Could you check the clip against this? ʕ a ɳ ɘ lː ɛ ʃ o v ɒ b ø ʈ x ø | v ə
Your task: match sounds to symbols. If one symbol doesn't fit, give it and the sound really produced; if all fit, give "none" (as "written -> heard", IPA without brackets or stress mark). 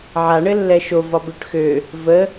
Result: none